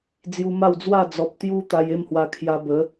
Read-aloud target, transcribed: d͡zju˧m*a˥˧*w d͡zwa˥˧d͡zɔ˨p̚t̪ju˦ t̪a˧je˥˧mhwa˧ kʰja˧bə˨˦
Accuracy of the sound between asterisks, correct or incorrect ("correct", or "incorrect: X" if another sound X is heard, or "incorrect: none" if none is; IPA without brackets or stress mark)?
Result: correct